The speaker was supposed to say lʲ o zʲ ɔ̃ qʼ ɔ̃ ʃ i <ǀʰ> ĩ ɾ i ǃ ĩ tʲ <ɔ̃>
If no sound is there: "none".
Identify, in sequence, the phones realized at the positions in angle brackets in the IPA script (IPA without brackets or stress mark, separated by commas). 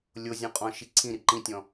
ǀʰ, ɔ̃